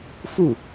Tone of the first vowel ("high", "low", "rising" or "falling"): falling